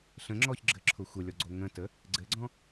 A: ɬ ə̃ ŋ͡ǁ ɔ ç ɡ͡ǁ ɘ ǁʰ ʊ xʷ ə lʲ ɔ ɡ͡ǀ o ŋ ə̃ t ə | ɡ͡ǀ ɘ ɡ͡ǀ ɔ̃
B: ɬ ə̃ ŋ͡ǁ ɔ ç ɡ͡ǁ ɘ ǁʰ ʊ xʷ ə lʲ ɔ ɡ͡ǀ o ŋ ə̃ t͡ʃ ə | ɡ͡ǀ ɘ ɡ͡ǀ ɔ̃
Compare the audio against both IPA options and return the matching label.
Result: A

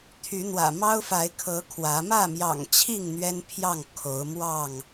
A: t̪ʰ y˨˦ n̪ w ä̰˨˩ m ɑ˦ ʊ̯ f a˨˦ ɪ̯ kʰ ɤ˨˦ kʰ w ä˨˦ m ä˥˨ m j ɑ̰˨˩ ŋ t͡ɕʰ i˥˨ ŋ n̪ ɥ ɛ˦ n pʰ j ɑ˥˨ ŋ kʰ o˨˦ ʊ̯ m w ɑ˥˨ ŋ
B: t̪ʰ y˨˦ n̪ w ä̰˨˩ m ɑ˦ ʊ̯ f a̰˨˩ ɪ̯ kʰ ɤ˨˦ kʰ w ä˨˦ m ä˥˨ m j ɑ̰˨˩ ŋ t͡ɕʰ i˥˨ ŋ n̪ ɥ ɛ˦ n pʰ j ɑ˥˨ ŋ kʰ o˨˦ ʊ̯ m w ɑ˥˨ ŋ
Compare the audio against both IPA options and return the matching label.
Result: A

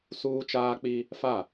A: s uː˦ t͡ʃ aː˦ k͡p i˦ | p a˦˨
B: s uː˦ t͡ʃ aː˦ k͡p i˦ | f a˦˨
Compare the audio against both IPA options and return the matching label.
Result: B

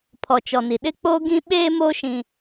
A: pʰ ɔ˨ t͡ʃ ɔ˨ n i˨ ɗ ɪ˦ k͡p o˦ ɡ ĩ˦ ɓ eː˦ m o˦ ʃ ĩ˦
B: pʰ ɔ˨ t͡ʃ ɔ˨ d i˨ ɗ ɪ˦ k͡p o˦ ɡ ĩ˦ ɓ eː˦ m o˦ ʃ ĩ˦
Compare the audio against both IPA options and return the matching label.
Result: A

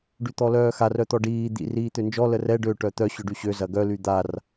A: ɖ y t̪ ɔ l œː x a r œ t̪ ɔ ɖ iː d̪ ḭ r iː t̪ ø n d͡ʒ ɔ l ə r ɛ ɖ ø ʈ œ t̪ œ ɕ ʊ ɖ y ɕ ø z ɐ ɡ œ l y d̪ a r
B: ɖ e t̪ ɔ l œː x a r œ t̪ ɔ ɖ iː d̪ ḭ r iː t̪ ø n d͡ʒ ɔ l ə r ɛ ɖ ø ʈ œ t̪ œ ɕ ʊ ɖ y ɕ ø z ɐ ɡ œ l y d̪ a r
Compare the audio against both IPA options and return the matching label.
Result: A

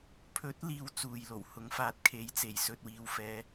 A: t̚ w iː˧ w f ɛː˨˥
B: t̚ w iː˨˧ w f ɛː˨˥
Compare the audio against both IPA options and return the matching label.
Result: B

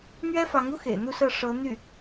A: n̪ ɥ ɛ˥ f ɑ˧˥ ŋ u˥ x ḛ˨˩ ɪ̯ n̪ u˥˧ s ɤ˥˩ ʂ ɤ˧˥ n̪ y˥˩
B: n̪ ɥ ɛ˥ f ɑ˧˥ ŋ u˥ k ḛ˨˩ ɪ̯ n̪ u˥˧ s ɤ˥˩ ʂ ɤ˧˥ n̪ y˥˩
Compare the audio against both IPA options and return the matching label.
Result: A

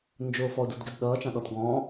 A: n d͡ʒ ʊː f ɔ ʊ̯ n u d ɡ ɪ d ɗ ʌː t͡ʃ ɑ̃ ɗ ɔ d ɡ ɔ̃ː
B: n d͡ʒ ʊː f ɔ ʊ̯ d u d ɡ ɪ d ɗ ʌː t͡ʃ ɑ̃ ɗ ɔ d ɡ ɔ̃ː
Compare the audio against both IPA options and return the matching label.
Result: B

